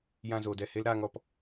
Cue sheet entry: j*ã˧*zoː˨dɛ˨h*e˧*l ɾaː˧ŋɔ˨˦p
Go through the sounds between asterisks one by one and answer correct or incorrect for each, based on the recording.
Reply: correct, incorrect

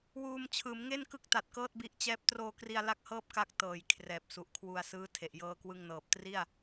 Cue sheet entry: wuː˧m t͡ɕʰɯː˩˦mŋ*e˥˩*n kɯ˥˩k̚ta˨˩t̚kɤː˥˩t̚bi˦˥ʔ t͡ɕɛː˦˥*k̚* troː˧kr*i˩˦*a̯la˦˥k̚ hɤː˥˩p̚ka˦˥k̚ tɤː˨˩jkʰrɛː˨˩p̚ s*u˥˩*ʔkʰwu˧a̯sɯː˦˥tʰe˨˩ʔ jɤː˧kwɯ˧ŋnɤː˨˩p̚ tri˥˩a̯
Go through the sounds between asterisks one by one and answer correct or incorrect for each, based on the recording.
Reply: correct, incorrect, incorrect, incorrect

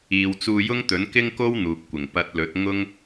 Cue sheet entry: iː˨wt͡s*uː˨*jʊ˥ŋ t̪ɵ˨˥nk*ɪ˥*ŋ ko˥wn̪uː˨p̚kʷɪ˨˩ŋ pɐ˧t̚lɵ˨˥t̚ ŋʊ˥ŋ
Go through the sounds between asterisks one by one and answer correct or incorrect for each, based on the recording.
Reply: incorrect, correct

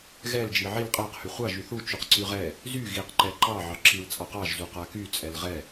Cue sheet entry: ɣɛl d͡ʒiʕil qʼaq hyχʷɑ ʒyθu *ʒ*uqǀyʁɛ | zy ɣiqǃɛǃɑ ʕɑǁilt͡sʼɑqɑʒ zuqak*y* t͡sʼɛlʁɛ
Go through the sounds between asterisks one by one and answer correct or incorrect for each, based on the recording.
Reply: incorrect, correct

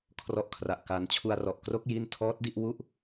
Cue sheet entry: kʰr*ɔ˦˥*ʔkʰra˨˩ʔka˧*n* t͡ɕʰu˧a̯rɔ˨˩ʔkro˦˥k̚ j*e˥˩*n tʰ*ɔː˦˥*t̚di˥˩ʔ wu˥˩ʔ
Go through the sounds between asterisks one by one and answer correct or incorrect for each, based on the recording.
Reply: correct, correct, incorrect, correct

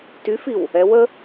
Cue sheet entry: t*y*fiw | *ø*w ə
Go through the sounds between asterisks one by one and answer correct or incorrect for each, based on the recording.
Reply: correct, incorrect

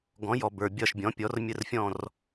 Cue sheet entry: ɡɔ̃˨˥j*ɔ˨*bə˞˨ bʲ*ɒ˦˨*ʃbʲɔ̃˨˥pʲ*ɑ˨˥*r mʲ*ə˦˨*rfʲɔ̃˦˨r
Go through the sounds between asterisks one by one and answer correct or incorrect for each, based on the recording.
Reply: correct, correct, incorrect, correct

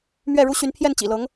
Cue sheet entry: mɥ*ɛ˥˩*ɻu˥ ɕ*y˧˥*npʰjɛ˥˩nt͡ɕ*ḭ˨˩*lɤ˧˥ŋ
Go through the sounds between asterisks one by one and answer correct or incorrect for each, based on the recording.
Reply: correct, correct, correct

